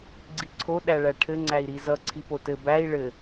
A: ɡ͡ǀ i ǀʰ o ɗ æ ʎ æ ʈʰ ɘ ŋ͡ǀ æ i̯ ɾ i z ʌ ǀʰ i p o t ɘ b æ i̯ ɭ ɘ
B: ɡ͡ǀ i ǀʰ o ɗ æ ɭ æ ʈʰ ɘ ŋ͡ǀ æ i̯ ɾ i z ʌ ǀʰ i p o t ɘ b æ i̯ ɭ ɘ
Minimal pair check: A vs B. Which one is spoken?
B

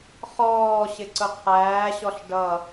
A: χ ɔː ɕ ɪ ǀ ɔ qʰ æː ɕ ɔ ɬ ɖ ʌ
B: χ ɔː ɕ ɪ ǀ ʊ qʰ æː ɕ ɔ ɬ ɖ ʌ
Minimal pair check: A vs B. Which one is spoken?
B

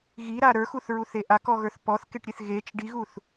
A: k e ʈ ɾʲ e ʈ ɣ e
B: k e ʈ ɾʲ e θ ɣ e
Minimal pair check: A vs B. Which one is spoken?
B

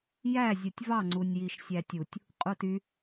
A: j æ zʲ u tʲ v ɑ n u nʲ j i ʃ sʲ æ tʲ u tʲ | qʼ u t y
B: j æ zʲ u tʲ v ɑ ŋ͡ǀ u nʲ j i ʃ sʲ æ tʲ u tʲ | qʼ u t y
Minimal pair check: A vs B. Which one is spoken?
B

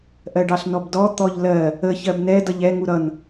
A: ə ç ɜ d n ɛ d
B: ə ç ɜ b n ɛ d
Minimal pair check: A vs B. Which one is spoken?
B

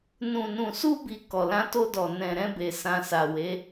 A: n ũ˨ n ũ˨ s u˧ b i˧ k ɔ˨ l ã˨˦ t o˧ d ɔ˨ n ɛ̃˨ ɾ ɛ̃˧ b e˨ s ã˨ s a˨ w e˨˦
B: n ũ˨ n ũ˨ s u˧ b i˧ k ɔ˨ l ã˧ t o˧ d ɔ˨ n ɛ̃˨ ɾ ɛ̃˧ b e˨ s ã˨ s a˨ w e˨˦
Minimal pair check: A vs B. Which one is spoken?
B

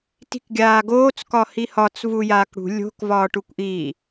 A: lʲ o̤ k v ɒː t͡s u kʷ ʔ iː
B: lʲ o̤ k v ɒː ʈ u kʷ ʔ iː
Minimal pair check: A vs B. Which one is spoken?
B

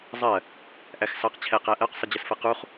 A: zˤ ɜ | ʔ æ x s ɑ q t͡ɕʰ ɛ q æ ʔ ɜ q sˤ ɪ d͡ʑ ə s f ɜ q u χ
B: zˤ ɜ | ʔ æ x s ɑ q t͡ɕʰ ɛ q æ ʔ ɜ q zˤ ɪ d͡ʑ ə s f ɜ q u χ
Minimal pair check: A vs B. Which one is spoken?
A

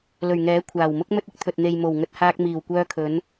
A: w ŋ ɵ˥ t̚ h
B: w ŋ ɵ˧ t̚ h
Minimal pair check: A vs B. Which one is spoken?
B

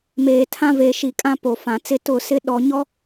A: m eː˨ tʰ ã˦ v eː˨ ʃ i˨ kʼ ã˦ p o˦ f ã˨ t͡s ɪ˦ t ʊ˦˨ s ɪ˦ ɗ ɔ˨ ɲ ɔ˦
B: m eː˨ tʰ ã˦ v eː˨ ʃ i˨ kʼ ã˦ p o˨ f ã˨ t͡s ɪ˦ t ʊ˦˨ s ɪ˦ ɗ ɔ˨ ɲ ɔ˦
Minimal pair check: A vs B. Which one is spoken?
B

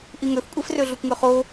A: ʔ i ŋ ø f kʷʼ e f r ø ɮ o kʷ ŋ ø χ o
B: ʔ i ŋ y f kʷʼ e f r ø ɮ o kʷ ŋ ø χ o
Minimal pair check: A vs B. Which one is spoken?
A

